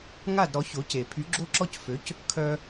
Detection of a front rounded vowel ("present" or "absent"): present